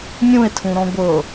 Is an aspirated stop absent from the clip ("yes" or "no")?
no